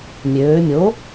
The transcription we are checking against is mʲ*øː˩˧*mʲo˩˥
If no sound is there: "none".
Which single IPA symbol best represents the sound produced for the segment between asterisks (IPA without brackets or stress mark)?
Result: øː˩˧